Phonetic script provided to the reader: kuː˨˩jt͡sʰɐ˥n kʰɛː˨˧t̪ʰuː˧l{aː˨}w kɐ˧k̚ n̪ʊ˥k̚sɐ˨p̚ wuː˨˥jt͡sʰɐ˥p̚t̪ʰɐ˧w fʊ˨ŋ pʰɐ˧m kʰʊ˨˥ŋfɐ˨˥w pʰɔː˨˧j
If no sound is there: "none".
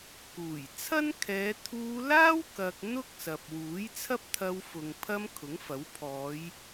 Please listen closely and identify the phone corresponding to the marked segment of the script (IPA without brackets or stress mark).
aː˥